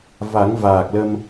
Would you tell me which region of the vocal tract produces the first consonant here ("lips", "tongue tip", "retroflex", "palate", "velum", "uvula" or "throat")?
lips